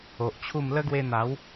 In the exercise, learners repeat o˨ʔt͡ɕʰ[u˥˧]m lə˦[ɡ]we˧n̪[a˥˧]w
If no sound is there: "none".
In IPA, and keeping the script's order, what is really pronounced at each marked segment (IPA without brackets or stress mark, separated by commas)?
u˥˧, ɡ, a˨˦